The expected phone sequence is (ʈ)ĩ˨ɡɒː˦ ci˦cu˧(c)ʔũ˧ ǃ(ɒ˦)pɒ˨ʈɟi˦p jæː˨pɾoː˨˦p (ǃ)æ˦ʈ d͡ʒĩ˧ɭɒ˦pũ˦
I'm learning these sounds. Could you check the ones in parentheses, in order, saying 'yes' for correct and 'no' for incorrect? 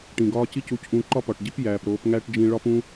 yes, yes, yes, no

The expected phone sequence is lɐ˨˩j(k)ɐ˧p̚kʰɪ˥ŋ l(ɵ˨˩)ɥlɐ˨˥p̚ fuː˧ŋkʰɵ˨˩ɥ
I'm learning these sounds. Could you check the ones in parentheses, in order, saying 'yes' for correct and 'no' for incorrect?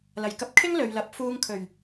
yes, no

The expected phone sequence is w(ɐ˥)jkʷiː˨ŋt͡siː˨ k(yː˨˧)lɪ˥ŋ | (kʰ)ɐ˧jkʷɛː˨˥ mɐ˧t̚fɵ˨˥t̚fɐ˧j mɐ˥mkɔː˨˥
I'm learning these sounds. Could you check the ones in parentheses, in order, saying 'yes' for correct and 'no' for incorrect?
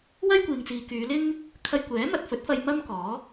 yes, yes, yes

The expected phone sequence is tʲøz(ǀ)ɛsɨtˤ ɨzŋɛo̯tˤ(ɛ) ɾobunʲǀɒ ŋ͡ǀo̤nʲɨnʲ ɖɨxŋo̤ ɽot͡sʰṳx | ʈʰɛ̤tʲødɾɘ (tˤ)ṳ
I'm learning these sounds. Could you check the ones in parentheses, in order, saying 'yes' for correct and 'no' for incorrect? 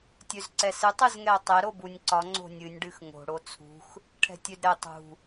yes, yes, yes

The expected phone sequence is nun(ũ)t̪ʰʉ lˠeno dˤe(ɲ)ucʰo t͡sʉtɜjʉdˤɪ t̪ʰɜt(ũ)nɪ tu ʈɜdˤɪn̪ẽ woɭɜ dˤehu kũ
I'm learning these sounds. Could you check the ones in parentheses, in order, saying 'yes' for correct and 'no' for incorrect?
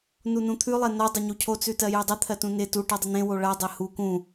yes, yes, yes

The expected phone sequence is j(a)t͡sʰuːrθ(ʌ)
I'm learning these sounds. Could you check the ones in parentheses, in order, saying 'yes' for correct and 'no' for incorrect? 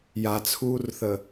yes, no

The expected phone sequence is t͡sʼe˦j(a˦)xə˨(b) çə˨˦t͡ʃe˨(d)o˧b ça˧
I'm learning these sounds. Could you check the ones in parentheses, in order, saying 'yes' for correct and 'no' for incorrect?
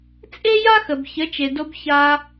yes, yes, yes

